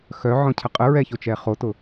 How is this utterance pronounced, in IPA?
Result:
x œ ʕ ɔ̃ cʰ ə qʼ ə ɹ ɛ ç o t͡ʃ ɛ χ o t ʊ

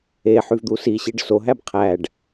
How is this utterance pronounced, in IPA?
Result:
e ħ y v d̪ u s i ɕ i ɖ s o ɦ æ b qʰ æ ɖ

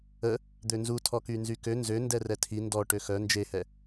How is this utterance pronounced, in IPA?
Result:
ə | d̪ ø n z u tʰ ɔ k y n z y k ø n z ø n d ɛ r ɛ tʰ i n d ɔ ʈ ø x œ n d͡ʒ e h ɛ

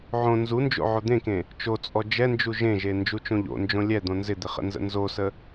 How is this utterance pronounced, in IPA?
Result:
ʕ õ n z u n d͡ʒ o̰ ʕ o d̪ ẽ k ẽ | t͡ʃ o t͡sʼ ɔ d͡ʒ ɛ n d͡ʒ u ʒ ẽ ʒ e n d͡ʒ u t͡ʃ õ ʎ o̰ n d͡ʒ õ lʲ ɛ d̪ õ n z ɪ d̪ ɪ χ ə̰ n z ə̰ n z o s ə

